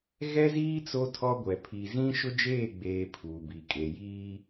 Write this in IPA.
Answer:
ɣ ɛ˦ z iː˦ t͡s o˦ tʰ ɔ˦ ɡʷ ɛ˨ pʰ i˨ z ĩ˦ ʃ ʊ˦ d͡ʒ eː˦˨ ɡ͡b eː˨ pʰ uː˨ b i˨ kʼ e˨ j iː˦

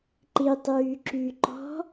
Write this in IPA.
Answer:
ǃ i tˤ yː ǁ y ǃ ɔ̤

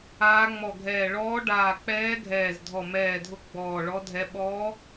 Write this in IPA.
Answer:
aː˧˥ ŋ͡m ɔ˧˩ ɡʱ ɛː˧˩ ɭ ɔː˧˥ ɖ aː˧˩ k͡p ɛː˧˥ ɡʱ ɛː˧˩ z dʱ ɔ˧˩ m ɛː˧˩ dʱ ʊ˧˥ ɡ͡b ɔː˧˩ ɭ ɔ˧˥ dʱ ɛ˧˥ ɓ ɔː˧˥

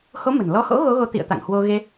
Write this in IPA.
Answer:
h o˨˦ m ə̤˨˩ n l ɔ˨˦ h o̰˧˥ ɣ o˨˦ ɣ o˨˦ t̪ ḭ˧˨ ə̯ t̪ a̰˧˨ ŋ h w o˧ ɣ e˧

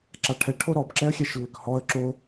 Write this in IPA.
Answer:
ǁ a ʈʰ ɛ ʈʰ o ɾ ɔ b ǁ ɛ ə̯ xʲ ɛ ʃ lː ʏ k h ɔ ə̯ ǁ o

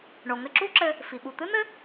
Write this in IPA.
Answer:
ɳ o˩ ŋ ɘ˧ ǁ u˥ ǁ ɘ˧ | f i˩ ɓ u˩ t̪ ɨ˥ n̪ ɘ˥

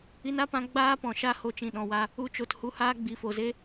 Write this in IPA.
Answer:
i˧ n a˦ p ã˧ ɡ͡b aː˦ p ɔ̃˨ ʃ a˦ h o˧ t͡ʃ ĩ˨ ɗ ɔ̃˨ w a˧ | u˦ t͡ʃ o˨ t h u˧ h aː˦ ɡ͡b i˨˦ f o˨ z e˦

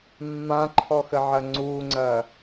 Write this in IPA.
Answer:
mː ã ǃʰ ɔ x ə ʕ ɐ ŋ͡ǀ u ŋ͡ǀ ɐ

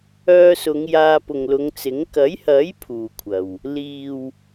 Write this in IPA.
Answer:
œː˧ s ʊ˨˧ ŋ j aː˧ p ʊ˨ ŋ l ʊ˨˧ ŋ t͡s ɪ˨˥ ŋ k ɐ˨˥ j h ɐ˨˥ j pʰ uː˨ kʷʰ ɐ˨ w | l iː˨ w

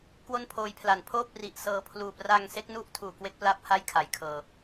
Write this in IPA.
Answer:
k w o˥˩ n pʰ oː˦˥ j pʰ l a˨˩ n pʰ oː˥˩ p̚ r i˨˩ ʔ s ɤː˧ pʰ l uː˨˩ p r a˧ ŋ s e˦˥ k̚ n u˦˥ ʔ tʰ uː˨˩ k w e˦˥ k̚ p l a˦˥ p̚ h a˥˩ j kʰ a˩˦ j kʰ ɤː˨˩

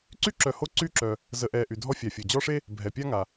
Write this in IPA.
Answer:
ǀ y˥ ǁ œ˨ h o˦ ǀ y˥ ǁ œ˨ | z ə˨ ʔ ɛ˨ ʔ y˩ dʱ ɔ˦ fʲ a˩ fʲ o˩ d͡ʑ ɔ˦ ʂ e˥ | bʱ ɛ˩ pʲ a˥ ŋ a˩

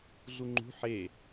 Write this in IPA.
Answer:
ɮ u ŋ͡ǃ ṳ ħ e

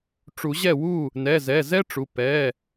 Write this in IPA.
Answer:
ʈ͡ʂ u˨˩˦ ʑ ɛ˥˩ w u˥˩ | n ɛ˩˧˩ z ɛ˩˧˩ z ɛ˥ ʈ͡ʂ u˩˧˩ p ɛ˩˧˩

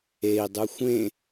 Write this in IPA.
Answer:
e i̯ dˤ u xʷ ẽ

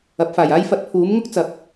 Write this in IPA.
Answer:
ɐ˨˥ p̚ f aː˨˩ j aː˥ j f ɐ˧ t̚ pʰ uː˨˥ m ŋ ʊ˥ k̚ t͡s ɐ˨˥ p̚

